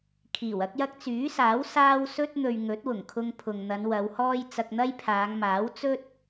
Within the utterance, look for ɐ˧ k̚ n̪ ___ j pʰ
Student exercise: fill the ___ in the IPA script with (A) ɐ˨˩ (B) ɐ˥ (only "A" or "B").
B